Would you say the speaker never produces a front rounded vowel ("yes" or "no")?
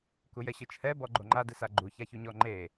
yes